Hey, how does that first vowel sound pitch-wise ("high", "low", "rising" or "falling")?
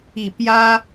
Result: falling